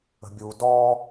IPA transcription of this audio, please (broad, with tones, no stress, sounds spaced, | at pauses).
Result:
ə̤˨ bʲ uː˨ d ɔː˧